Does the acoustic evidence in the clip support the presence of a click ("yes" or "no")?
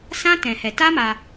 no